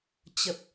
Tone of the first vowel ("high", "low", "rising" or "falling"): low